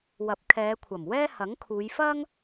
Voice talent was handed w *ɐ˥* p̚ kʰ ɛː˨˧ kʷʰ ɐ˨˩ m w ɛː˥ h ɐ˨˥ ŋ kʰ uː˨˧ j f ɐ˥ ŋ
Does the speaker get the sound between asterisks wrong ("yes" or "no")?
yes